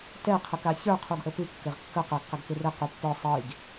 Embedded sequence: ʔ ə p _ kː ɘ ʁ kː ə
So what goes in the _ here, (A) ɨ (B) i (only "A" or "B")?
A